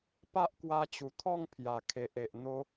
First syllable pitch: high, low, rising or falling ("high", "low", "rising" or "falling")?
high